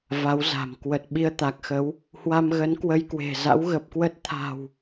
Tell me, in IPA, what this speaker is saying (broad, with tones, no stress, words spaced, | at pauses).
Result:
va˨˦wza̤˨˩m kwə˨˩t̚ ɓi˧ə̯t̪a˨˩k̚xə˨˦w | hwa˧mɣə˨˦n kwə˧jkwe̤˨˩ za̰˧˥wɣə˨˩p̚kwə˦˥t̚ t̪ʰa̤˨˩w